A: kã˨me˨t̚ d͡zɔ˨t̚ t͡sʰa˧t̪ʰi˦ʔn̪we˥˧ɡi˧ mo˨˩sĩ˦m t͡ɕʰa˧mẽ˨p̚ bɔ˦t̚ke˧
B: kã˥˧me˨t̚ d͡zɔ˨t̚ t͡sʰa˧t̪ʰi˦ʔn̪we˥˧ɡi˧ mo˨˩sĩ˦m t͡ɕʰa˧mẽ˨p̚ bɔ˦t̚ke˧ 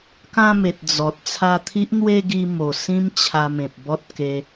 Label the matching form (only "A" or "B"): B